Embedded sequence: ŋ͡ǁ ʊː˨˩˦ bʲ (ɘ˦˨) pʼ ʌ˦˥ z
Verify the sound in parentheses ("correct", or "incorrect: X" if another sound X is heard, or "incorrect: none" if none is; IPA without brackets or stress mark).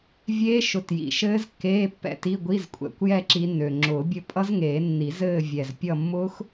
correct